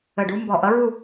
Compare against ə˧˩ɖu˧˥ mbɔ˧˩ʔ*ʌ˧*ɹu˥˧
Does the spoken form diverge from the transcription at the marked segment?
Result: yes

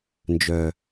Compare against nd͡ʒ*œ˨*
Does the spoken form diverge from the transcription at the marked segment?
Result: no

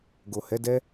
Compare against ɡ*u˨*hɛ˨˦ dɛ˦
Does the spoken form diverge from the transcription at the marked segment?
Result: yes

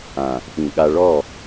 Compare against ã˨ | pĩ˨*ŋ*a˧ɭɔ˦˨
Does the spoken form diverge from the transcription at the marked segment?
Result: yes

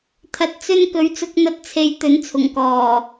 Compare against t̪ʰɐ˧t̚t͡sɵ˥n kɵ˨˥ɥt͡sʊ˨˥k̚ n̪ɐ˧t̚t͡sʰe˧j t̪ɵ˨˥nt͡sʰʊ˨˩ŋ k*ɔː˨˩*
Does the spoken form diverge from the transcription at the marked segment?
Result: no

